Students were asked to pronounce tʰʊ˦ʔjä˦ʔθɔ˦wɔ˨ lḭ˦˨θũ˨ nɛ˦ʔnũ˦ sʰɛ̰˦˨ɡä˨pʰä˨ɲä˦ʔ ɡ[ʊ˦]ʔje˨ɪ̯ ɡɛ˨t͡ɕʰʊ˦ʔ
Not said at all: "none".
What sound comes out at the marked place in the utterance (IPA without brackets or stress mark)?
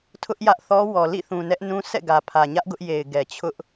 ʊ˦